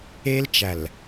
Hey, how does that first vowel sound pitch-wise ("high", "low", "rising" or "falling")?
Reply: high